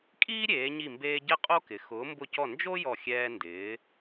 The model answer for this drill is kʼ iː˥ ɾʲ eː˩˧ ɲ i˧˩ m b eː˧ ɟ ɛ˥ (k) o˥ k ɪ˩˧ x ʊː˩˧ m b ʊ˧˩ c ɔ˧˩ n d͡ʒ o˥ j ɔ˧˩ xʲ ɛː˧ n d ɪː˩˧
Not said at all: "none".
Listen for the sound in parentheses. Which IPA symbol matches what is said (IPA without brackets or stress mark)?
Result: qʼ